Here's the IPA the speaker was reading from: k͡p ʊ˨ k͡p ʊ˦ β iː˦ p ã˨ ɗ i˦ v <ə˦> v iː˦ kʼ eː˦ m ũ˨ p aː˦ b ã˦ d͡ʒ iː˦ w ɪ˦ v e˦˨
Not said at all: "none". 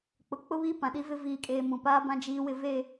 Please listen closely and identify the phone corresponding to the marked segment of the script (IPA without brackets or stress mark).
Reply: ɪ˦